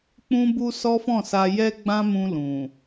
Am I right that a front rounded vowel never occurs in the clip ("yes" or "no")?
yes